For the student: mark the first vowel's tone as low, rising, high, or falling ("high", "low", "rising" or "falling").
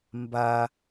high